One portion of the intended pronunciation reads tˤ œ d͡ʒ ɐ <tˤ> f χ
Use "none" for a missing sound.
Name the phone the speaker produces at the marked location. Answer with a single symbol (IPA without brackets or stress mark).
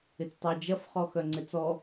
none